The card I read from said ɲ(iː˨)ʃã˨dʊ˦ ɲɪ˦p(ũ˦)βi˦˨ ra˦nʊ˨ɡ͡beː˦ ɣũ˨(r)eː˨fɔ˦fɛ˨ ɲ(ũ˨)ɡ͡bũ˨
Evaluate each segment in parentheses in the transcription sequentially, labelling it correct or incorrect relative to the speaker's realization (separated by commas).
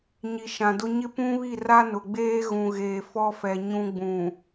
incorrect, correct, incorrect, incorrect